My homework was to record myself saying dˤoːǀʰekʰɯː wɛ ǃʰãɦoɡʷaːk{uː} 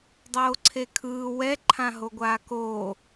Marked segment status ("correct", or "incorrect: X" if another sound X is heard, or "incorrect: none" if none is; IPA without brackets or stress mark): incorrect: oː